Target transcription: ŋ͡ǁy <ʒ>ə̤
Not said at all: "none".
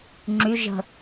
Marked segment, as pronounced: ʒ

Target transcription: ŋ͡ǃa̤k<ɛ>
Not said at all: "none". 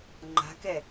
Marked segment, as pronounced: ɛ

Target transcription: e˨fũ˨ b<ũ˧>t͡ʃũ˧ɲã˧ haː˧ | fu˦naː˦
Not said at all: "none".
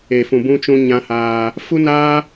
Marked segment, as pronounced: ũ˧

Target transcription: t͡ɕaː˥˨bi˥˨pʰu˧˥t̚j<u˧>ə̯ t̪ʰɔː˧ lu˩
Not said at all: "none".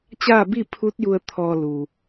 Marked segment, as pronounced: u˧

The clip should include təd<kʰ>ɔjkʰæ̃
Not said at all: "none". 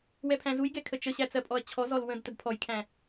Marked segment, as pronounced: pʰ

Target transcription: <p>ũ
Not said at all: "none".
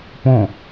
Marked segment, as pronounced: p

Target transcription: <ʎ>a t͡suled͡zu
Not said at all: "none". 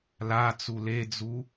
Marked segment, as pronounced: l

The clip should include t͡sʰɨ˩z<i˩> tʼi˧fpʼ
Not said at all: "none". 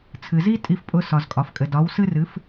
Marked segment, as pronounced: i˥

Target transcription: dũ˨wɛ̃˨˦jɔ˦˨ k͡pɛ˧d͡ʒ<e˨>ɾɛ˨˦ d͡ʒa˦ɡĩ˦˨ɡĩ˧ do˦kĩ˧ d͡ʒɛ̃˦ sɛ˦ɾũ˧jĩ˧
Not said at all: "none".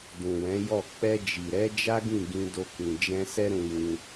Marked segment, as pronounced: i˨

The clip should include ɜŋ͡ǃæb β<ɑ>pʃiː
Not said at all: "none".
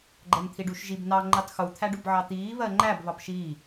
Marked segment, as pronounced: ɑ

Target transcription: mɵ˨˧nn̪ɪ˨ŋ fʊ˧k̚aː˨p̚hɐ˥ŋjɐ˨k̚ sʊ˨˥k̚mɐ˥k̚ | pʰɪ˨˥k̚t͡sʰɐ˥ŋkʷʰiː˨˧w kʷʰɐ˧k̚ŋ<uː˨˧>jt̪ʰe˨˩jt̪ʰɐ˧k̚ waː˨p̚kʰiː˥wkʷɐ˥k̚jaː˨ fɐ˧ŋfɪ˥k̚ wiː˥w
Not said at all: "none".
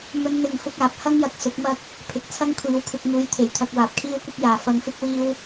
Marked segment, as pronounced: uː˨˧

